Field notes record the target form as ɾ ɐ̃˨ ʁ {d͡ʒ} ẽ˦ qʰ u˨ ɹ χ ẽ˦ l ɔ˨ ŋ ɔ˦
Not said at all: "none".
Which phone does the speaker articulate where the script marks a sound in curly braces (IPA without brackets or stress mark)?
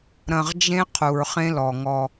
d͡ʒ